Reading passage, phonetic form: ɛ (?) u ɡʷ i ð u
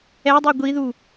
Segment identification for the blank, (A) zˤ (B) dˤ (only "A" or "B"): B